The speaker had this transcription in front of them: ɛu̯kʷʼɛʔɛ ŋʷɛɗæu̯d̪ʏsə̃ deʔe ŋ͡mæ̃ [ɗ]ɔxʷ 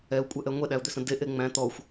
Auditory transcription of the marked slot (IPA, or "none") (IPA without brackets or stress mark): t̪